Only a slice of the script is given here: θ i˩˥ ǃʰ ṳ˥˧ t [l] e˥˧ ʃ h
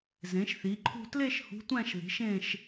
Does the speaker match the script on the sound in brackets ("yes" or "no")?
yes